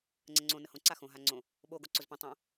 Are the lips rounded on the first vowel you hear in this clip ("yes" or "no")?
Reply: no